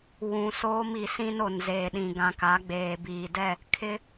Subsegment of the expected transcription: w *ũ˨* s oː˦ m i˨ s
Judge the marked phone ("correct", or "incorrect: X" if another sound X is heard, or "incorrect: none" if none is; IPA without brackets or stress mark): correct